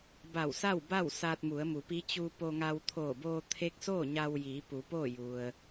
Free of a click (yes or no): yes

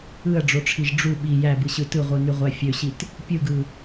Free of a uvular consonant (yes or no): no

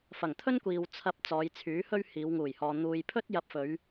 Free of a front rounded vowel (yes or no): no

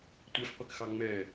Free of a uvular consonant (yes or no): no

